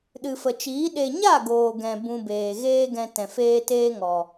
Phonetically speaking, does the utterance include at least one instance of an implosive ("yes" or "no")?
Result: yes